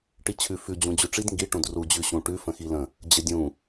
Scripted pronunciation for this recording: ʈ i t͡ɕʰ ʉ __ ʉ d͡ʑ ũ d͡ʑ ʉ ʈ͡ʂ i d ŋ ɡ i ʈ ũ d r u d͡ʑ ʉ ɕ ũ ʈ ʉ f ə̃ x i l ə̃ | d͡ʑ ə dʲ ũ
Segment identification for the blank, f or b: f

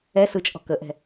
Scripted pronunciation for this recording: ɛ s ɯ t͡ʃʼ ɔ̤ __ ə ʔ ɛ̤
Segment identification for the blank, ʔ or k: k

